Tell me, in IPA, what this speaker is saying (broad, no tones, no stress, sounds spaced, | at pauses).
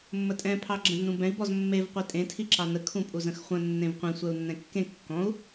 mː ə tʼ ɛ̃ pʰ ɑ ɡ͡ǁ ə̃ z n ũ b ɛ̃ i̯ b ɔ z mː e v qʷ i tʼ ẽ tʰ i ǁ ɑ n ə kʰ ũ pʼ u z ə̃ x χʷ ə̃ nː ẽ v qʷ ẽ sʷ ɛ u̯ nː ɛ̃ kː ẽ kː ɔ̃ u̯